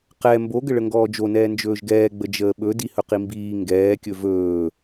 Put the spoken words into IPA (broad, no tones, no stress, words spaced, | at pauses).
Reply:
qɛ mboɡəɭə ŋɡɔːd͡ʒonɛː nd͡ʒɵːʒɡɛːɡ͡bə d͡ʒəːɓɵ dihɵqimbiː ŋɡɛːkʲɵ vɵː